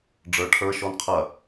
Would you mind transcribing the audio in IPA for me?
ɖ͡ʐ ə˞ ʈʰ ə˞ ʃ ɔ n qʰ ɐ

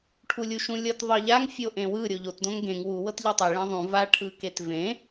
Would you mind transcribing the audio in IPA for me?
ʈʰ u lʲ u ʃ ũ lʲ ɤ t ðˤ ɤ ʎ a ŋ fʲ o ʔ ẽ w ɯ ɾʲ o ʎ o t d õ ŋ ɡ ẽ ŋ w u w ɤ t ʎ ɯ tˤ e ɭ ẽ ðˤ ũ v a ʈʰ ɯ k e t v ẽ

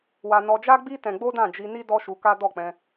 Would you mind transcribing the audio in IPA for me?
w a˧ n ɔ˧ d͡ʒ a˦ ɡ͡b i˦ t ɛ̃˧ ɡ͡b o˦ d ã˦˨ d͡ʒ i˧ n i˦ d ɔ˦ ʃ u˧ k a˦ d ɔ˦˨ k͡p ɛ̃˧

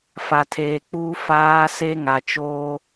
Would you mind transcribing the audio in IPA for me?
f a˨ tʰ eː˨ k͡p uː˦ f aː˦ s e˦ ŋ a˨ t͡ʃ oː˦

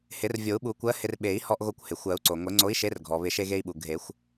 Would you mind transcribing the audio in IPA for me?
h ɪ˨˩˦ r vʲ o˨˩˦ u̯ ɓ u˨˩˦ kʷ ɜ˨˥ h ɪ˧ r ɓ e˨˩˦ i̯ h ɔ˧ ʔ ɣ o˧ kʷ h ɪ˩ xʷ ɜ˨˩˦ u̯ ǀ o˩ ŋʷ e˨˩˦ ŋ͡ǀ o˨˥ i̯ ʃ e˨˥ r ɡʱ ɔ˩ β ɪ˨˩˦ ʃ e˧ ɣ e˧ i̯ ɓ u˩ ɡʱ e˨˩˦ xʷ

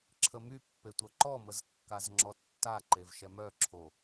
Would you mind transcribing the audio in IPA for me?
ǁʰ ə m y pː e tʷ œ ǃ ɔ m ə z kː a z ŋ͡ǁ ɔ tː a ǃ e v ʃ ɛ m œ ǁʰ o

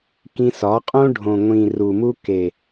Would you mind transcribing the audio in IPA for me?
k ĩ˧ s ɒ˨˦ qʼ õ˦ ɖʱ õ˨ ŋʷ ĩ˨ r u˨ m u˧ k e˨

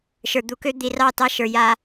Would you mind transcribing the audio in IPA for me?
ʃ ə˞˨ d̪ u˨ k ø˦ d̪ i˨ r ɑ˦˨ t ɑ˦ ʃ ə˞˨ j a˦

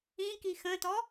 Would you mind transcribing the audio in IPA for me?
ĩ k i x ə̃ː t ɔ

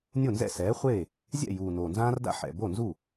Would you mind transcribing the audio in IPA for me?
nʲ o˥˩ n z ɛ̰˥˩ s ɛː˩˥ χʷ eː˥˩ | zʲ ɛ̰˥˩ j uː˨˩ n oː˨˩ n z ãː˦ r d a̰˦ ħ ɛ̰˨˩ b o˥˩ n z u˥˩

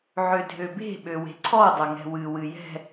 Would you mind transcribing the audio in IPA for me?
ʕ ø dʱ ø b e̤ ɓ ø w e̤ ǀʰ ɔ dˤ ʌ ŋ ɛ̤ w ɨ w ɨ j ɛ̤

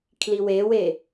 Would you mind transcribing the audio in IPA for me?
kʰ l i w e w e

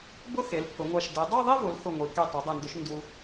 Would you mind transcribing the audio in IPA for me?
b ʊ˥˧ x e˩˧ l pʰ ʊ˩˧ ŋʷ a˧˩ ʃ d ɛ˩˧ dˤ a˥˧ ðˤ i˥˧ v ʊ˩˧ l x ʊ˧˩ ŋʷ i˩˧ k e˧˩ tˤ u˩˧ dˤ ɛ˧˩ n d ʊ˧ ʃ n d u˧

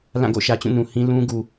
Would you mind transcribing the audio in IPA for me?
l ã˦˨ ɡ o̰˦˨ ʃ ä˨ t͡ɕ ũ˦˨ n ũ˨ h ĩ˦ l ũ˦ ɡ u˨

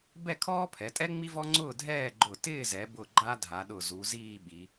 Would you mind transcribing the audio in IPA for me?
b ɛ˥˧ kʰ ɔː˥ pʰ ɛ˩˧ tʼ ɛ˥ ŋ͡m i˥ v ɔ˥ ŋ͡ǀ ʊː˥˧ dʱ ɛː˥˧ ɡ͡ǃ ʊ˧˩ t ɪː˥˧ z ɛ˩˧ b ʊ˧˩ ɡ͡ǃ a˥ dʱ a˩˧ ɗ ʊ˧˩ z u˩˧ z iː˥˧ ɓ i˩˧

